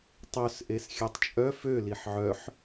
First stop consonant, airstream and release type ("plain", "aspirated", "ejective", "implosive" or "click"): plain